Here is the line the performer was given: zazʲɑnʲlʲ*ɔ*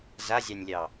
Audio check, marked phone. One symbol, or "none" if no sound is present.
ɑ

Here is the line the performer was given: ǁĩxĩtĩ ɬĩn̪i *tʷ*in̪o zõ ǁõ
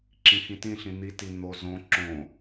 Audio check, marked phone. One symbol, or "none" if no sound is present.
t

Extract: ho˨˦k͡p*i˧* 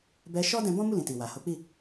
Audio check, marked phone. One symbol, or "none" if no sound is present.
i˦˨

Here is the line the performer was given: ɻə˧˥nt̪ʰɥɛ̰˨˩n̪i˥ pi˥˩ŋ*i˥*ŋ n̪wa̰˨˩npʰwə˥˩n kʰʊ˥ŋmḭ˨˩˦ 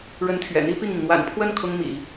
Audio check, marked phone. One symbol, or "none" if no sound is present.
i˩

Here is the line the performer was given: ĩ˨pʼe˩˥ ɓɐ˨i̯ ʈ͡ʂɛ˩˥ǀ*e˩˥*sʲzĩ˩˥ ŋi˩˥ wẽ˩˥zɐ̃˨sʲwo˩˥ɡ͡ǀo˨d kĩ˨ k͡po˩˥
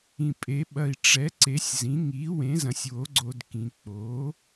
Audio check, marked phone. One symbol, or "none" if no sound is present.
e˩˥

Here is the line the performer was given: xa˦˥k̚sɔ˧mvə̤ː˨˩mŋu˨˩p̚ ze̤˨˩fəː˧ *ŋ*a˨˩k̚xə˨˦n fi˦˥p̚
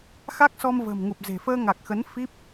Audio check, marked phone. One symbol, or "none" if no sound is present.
ŋ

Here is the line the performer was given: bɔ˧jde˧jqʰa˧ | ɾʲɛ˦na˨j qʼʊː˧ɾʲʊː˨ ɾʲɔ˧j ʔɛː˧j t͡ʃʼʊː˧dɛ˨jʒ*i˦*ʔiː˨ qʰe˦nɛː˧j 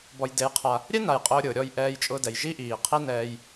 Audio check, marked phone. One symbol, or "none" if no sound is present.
i˦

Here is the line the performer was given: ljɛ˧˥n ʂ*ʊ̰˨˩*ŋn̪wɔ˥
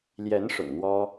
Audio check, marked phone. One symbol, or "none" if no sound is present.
ʊ̰˨˩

